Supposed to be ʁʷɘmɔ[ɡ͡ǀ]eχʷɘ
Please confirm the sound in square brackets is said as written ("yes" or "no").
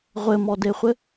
no